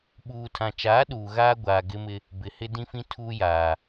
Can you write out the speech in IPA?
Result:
ɓ uː˨ tʰ ã˨ t͡ʃ aː˨˦ ɗ uː˨ ɣ aː˦ ɡʷ aː˨ ɡ ɪ˦ m ɪ˦ | b ɪ˨ h ɪ˦ d ĩ˦ f ĩ˦ tʰ uː˦ j aː˨

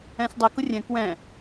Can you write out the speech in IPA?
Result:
ɛ̃ s dˤ i k ʊ rʲ ɛ̃ k w ɛ̃

